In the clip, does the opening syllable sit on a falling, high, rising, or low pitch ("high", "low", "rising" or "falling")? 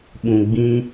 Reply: low